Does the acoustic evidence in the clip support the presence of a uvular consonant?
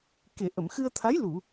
no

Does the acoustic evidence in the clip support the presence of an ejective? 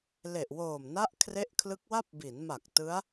no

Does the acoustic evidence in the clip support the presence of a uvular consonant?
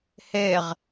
yes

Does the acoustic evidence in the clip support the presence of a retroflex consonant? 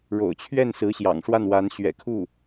yes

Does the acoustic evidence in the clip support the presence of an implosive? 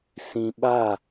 yes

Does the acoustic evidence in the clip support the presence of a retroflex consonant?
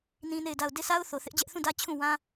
no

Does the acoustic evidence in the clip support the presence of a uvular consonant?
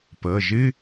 no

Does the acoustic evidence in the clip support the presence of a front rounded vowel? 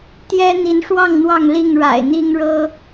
no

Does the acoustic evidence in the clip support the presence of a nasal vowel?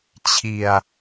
no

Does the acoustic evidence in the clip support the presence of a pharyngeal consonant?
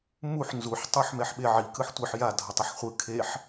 yes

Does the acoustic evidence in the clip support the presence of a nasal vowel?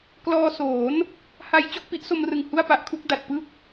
no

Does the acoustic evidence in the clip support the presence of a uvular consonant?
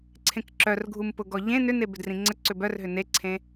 no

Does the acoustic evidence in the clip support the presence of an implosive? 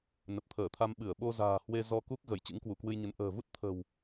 yes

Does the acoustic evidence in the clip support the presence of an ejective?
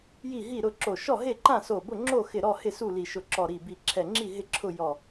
no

